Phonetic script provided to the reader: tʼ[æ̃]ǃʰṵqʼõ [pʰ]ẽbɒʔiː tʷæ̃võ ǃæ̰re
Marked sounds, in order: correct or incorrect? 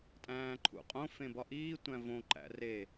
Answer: incorrect: æ̃ː, incorrect: f

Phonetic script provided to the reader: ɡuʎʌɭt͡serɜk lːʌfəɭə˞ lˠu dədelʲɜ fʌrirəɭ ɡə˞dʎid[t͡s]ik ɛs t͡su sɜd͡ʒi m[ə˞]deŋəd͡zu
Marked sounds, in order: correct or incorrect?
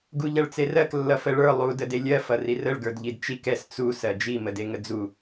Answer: incorrect: t͡ʃ, incorrect: ə

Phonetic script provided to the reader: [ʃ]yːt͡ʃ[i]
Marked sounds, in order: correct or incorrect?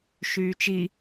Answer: correct, correct

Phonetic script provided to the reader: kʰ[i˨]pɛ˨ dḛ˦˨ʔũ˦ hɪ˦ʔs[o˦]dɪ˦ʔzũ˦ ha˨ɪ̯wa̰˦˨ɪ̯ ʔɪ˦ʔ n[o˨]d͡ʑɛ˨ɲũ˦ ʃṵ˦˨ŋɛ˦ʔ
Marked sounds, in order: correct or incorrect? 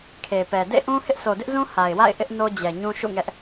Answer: incorrect: e˨, incorrect: o˨, incorrect: o˦

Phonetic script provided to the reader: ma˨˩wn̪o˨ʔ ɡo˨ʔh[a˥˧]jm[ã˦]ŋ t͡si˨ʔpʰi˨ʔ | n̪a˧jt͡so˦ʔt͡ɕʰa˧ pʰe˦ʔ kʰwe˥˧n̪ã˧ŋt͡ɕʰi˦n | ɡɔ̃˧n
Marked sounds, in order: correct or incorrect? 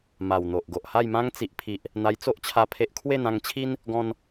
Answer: correct, correct

